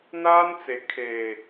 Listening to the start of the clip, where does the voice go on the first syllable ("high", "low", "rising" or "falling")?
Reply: high